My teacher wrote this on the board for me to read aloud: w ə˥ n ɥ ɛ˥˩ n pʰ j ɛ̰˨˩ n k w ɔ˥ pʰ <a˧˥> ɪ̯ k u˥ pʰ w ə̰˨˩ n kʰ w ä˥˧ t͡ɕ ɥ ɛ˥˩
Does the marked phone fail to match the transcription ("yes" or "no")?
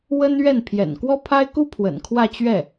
yes